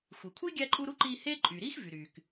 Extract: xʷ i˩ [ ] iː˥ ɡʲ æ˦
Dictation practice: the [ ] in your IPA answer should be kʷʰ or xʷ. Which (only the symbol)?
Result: kʷʰ